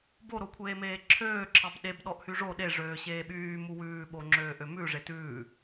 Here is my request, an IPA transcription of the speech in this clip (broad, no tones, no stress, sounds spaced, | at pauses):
b o ɾ o kʷʰ eː m eː ǁʰ øː ǁʰ ɑ b ɗ e b ɗ ɔ ʔ h y ʐ o ɗ e ʐ øː ɕ eː ɓ yː m u w ʉː ɓ o ŋ͡ǁ øː ʔ ø m ʉ ʐ e t ʉː